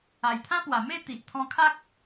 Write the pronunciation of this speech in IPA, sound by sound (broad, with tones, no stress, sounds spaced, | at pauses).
a˨˩ j t̪ʰ ã˦ p w a˨˩ m e˥˧ t̪ i˨ ʔ t̪ʰ ɔ̃˧ kʰ a˦ k̚